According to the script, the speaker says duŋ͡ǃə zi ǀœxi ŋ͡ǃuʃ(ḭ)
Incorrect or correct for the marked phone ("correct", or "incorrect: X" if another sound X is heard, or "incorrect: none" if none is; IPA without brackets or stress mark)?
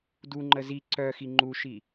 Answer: incorrect: i